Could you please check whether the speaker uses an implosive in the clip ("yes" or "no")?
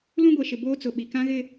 yes